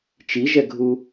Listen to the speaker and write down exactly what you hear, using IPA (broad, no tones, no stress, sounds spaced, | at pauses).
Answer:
t͡ʃ i ʒ ɛ ɡʱ u